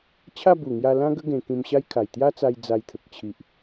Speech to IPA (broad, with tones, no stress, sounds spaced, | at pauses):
t͡ɕʰ a˥˧ b u˨˩ ŋ j a˧ l ã˦ ɡ ə˦ ɡ ẽ˧ k ĩ˧ m ɕ a˦ j kʰ a˨˩ j t̪ j a˦ t͡s a˧ j d͡z a˧ j t̪ʰ ə˨ k̚ t͡ɕʰ i˨ ʔ